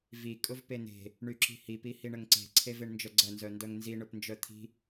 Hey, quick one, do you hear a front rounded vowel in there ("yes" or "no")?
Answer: yes